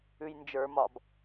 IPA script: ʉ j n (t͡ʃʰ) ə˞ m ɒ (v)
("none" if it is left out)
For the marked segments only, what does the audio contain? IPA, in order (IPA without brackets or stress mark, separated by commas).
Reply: d͡ʒ, b